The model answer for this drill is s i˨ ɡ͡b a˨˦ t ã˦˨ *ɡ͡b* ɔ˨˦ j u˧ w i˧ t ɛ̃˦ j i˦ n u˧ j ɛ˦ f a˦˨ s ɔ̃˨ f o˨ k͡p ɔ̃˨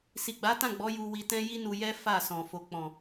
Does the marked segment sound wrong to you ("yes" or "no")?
no